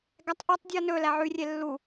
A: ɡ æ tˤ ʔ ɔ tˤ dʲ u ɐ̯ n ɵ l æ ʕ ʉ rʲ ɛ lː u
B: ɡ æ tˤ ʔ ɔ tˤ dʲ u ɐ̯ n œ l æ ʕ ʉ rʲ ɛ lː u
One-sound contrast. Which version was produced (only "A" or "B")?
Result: A